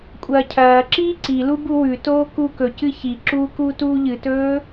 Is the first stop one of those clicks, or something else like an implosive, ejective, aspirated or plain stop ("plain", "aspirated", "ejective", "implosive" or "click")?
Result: ejective